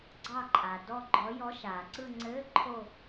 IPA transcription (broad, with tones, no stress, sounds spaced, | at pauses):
ɡ͡ǀ ɑ˦˨ ǃʼ a˩ d ɔ˦˨ ɡ͡ǃ ɔ˨˥ j ɔ˨˥ ʃ aː˩ ǀ ɯ˦˨ ŋ͡ǀ ɘː˧˥˧ ǃʰ o˦˨